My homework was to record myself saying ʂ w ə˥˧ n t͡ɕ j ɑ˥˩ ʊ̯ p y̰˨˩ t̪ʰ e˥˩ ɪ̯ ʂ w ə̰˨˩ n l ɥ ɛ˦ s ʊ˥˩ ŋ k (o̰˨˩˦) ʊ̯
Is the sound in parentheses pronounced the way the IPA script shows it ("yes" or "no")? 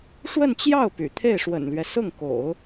yes